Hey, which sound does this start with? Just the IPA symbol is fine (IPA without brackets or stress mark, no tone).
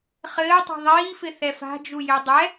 χ